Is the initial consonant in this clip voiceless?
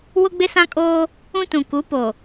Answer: no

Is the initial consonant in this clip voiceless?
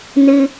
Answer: no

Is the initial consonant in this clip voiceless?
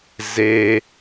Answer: no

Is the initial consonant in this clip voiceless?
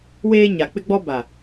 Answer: no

